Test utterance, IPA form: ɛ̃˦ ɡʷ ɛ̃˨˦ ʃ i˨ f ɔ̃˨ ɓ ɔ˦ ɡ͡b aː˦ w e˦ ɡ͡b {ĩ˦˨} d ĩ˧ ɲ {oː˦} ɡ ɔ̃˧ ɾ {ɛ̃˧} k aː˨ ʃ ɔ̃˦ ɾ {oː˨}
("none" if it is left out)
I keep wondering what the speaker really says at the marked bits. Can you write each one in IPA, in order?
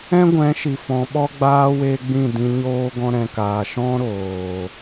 ĩ˦˨, oː˦, ɛ̃˨, oː˨

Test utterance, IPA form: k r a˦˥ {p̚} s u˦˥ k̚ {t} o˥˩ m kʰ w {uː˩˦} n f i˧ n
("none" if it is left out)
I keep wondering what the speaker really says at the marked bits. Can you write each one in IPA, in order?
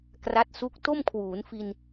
t̚, t, uː˩˦

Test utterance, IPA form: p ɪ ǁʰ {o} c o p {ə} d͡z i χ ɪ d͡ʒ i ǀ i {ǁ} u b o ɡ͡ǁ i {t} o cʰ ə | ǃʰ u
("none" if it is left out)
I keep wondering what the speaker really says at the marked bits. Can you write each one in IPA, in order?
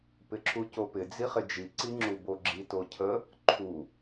u, ɪ, ŋ͡ǁ, t

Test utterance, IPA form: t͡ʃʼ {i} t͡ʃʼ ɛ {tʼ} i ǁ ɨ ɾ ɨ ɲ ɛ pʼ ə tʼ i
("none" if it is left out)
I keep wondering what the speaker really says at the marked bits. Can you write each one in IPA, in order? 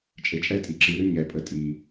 e, tʼ

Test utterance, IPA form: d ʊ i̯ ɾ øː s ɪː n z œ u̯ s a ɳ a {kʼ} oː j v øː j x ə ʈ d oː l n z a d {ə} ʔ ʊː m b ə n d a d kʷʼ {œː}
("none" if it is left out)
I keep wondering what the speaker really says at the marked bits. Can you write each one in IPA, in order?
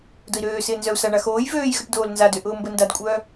x, ø, œː

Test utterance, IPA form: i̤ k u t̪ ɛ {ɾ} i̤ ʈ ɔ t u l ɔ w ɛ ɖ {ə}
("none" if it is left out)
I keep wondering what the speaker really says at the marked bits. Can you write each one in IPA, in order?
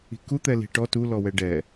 l, ɛ

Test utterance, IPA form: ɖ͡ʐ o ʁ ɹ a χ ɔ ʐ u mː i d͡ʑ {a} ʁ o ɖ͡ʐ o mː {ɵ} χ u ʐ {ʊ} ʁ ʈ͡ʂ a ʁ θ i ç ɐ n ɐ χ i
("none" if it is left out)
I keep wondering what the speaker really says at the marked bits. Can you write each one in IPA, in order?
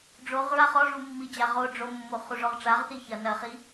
a, o, ɔ

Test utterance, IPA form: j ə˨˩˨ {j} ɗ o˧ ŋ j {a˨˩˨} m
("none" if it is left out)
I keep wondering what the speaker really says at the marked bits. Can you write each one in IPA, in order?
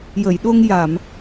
j, a˨˩˨

